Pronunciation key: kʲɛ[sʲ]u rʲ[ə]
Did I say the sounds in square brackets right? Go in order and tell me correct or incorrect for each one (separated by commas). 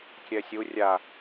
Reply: correct, incorrect